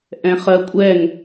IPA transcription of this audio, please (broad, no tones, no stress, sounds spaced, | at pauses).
ʔ ɛ̃ χ ɜ kʷʼ ɛ ŋ